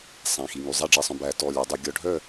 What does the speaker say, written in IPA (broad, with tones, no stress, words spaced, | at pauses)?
sˤæ̃˩˧˩xi˩˧˩ ŋy˩˧˩zˤæ˥˨ɖ͡ʐɛ˧˩˧sˤœ̃˩˧˩ bæ˧˩˧ tɔ˩˧˩lʲæ˧˩˧dˤi˧˩˧ ɡʲɔ˧˩˧ɖʱœ˥˨